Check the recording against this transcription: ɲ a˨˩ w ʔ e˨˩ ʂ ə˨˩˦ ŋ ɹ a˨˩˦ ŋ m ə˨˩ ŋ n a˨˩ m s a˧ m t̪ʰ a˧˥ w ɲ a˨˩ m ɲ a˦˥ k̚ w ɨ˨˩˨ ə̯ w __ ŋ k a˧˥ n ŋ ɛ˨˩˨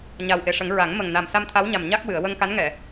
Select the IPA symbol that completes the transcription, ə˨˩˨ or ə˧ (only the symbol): ə˧